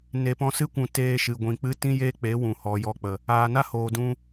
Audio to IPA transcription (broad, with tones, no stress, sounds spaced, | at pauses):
n e˨ p ɔ̃˧ s ɨ˦ kʷ ũ˨ t eː˧ ʃ ɨ˨ ɡʷ ĩ˨ k͡p ɨ˧ t ĩ˦ j eː˦ k͡p e˨˦ w ũ˨ h ɔ˨ j ɔ˧ k͡p ə˨ | aː˨ n a˦ h oː˨ d ũ˧